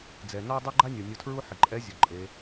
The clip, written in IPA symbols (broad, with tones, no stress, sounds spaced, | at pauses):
d͡z ɛ˩ n ɔ˥ dˤ i˥ ɡ͡ǃ a˥ nʲ o˩ nʲ o˧ tʰ ɹ u˥ ħ ɪ˩ ǃʼ ɛ˧˥ zʲ ʊ˩ ǃʼ e˩˧